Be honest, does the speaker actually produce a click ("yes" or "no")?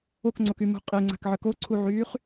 yes